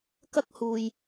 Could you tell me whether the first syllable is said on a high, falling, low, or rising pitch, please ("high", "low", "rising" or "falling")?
high